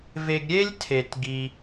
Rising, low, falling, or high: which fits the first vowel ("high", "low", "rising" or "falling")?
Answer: high